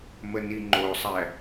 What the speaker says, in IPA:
məniŋ͡ǃosˤæ

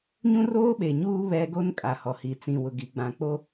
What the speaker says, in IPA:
ɲũ˦roː˦ɓe˨ɲuː˦ βɛ˦ ɡo˦nkʼa˨hɔ˨hi˨ t͡sĩ˨wʊ˨ɡi˨ ɡ͡bã˨k͡po˦

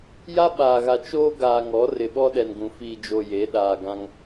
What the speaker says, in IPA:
ja˦ɓaː˨ɣa˨ t͡ʃoː˦ɡaː˨ ŋɔ˨˦ rɪ˨ɓɔ˦ɗɛ˨nɡũ˨ fiː˨d͡ʒo˨ je˨˦ ɗaː˨ɡã˦ŋ

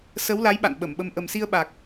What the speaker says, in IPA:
sə˨˦wla˨˦j ɓa̰˧˨nɓə˧˩mɓə˧m ʔə˨˩msi˧ə̯ɓa˨˩k̚

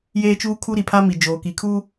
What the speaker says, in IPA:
jeː˦t͡ʃuː˦kʰu˦ɾi˨ pʰa˦mi˨d͡ʒoː˨ki˨ kʰu˦

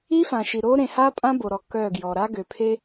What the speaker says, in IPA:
i˦fã˨ʃi˨ ɾo˦ ɾẽ˨ha˦pʼã˦ bo˨ɾɔ˨ kœ˦˨ɡjɔ˨ ɾa˦ɡø˨pʰe˦

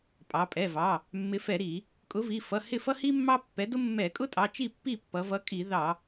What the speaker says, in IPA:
pʼɑ˩˧pʼɛ˩˧˩vɑ˩˧˩ | mːɪ˨˥fɛ˧˩˧ɾi˧˩˧ | kʼʊ˨˥vi˩˧˩ fʌ˩˧˩ hɪ˥˩fʌ˥hi˥ mːɑ˥pːɛ˨˥dʊ˥ mːɛ˧˩˧ kʼʊ˥tʼɑ˩˧˩t͡ʃi˥˩ pːi˥˩pːʌ˩˧vʌ˨˥ kʼi˧˩˧ðɑ˧˩˧

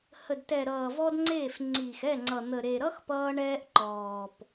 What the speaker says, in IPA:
hə˨dtɛ˨ɾʌː˨ vɔ˦dŋ͡ǀeː˦˨f ŋ͡ǀiː˨xɛ˦˨ŋ͡ǀʌ˨ n̪ə˨ ɾe˨ɾʌ˦x pʌː˦ɳɛː˦ʔǃɔː˨p

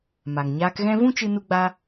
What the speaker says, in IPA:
ma˨ŋɲaː˧kɣɛ̃˦ vũ˦t͡ʃɨ˧nu˧ɡ͡ba˧

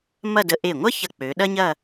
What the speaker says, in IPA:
mɐ˥˧də˧ ʔe˧˩ŋʷɐ˥çɐ˧˩ k͡pø˩˧ɗɐ˥ɲɐ˥˧

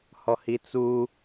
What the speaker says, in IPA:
hɔhit͡su

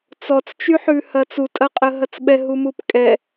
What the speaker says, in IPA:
t͡sɔt͡st͡ʃyħʉ hɐt͡sutʼɐqʼə ɦɐt͡sɓɛ ɦumupkʼɛ

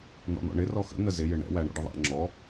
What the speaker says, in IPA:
nɔ̰n̪ɔ̰ɳɪ rɔxə̰ n̪əzɪ jɪɳɛ̰ wæɳɔ̰ɖəðˤæ̰ ŋ͡ǁɔ

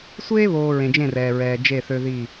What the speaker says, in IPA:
sʷeː˦βoː˨ ɹẽ˨d͡ʒẽ˦˨rɛː˨ɹɛː˨ d͡ʒe˦˨θø˦ði˦˨

